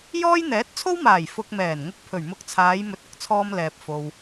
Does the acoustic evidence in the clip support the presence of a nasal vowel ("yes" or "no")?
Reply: no